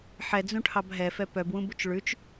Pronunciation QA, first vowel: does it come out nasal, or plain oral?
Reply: oral